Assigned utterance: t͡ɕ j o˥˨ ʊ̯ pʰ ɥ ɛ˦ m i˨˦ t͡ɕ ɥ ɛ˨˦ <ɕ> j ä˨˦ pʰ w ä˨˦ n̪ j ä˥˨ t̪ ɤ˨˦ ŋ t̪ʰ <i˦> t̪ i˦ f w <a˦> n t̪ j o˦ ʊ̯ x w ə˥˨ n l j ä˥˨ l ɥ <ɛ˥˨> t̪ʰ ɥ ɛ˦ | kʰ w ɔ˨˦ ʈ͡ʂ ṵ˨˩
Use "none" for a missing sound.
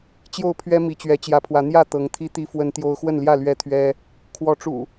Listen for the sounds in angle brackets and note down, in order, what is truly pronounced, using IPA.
t͡ɕ, i˦, ə˦, ɛ˥˨

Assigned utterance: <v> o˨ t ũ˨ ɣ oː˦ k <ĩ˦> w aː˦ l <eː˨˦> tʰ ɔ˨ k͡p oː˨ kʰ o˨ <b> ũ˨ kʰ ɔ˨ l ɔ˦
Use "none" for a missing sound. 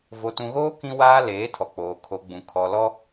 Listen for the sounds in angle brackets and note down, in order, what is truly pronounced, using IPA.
v, ĩ˦, eː˨˦, ɡ͡b

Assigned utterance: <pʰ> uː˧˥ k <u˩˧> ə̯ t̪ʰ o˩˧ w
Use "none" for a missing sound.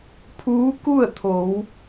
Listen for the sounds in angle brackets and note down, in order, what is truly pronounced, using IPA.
pʰ, u˥˨

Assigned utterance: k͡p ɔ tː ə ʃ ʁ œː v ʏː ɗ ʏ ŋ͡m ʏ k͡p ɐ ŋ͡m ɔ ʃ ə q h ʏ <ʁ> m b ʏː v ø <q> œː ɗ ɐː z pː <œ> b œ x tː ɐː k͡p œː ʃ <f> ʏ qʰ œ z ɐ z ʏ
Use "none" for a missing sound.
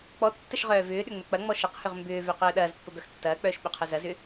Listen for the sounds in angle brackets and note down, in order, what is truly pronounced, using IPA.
ʁ, q, ə, ɓ

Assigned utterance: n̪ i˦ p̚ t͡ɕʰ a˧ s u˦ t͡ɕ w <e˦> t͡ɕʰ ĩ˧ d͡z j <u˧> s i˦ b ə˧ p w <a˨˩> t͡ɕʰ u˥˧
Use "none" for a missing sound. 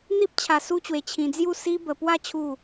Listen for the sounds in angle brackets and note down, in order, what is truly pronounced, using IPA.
e˧, u˥˧, a˥˧

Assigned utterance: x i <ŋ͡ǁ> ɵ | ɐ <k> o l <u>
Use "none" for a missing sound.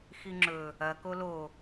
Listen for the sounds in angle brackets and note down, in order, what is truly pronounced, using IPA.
ŋ͡ǁ, k, o

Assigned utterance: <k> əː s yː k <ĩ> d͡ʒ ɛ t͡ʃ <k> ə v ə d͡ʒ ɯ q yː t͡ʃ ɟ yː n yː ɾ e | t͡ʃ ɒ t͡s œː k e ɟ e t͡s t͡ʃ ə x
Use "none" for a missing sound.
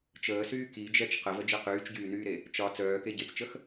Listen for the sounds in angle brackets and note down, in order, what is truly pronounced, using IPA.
t͡ʃ, i, q

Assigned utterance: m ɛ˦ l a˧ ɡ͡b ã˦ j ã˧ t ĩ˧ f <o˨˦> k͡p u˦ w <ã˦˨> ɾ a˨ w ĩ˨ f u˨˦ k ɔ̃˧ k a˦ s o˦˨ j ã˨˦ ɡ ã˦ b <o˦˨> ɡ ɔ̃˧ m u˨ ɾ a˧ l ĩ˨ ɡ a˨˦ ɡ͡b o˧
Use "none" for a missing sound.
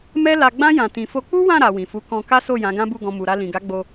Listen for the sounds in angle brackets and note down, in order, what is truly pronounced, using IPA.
o˧, ã˦˨, u˦˨

